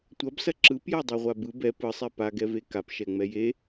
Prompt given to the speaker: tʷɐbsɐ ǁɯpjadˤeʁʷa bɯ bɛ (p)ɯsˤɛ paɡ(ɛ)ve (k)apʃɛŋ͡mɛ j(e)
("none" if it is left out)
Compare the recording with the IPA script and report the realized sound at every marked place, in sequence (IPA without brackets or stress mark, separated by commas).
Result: p, ɛ, k, e